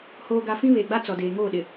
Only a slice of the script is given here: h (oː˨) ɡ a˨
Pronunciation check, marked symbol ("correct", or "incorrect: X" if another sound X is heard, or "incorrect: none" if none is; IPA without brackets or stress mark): correct